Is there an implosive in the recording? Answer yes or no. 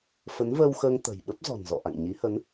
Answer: yes